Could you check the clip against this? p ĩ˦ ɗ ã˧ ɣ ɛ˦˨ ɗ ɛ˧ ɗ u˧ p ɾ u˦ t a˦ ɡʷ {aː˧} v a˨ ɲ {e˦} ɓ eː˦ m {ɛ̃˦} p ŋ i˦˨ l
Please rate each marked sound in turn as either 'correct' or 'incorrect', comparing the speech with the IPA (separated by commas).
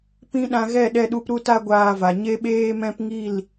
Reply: correct, correct, correct